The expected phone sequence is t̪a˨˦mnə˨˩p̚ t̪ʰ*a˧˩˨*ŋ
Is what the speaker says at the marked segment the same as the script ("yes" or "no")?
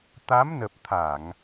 yes